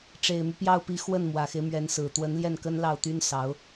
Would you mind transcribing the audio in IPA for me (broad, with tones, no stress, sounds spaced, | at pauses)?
ʈ͡ʂ e˨˩ ɪ̯ m y˦ p j ɑ˥˩ ʊ̯ p i˧˥ x w ə˥˩ n m w ä˨˩ x e˦ ɪ̯ m ɥ ɛ˧˥ n s ɹ̩˨˩ t̪ w ə˧˥ n l j ɛ˥˩ n k ə˥ n l ɑ˥˩ ʊ̯ t̪ y˥ n s ɑ˧˥ ʊ̯